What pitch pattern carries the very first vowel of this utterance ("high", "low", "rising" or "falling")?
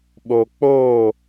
low